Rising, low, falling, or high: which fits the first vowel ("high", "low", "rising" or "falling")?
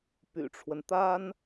low